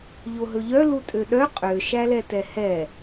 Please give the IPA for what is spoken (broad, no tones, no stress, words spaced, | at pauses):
ʎoɦɵʎœ lutʼøɗœ qʼø ʃælɛtɛhɛ